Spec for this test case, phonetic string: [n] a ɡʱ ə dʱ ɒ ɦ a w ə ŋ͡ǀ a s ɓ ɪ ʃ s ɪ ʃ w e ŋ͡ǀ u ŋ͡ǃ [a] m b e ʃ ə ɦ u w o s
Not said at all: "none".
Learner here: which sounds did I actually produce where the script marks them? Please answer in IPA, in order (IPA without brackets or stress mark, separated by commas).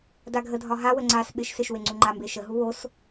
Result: d, a